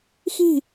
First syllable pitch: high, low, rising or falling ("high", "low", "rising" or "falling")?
falling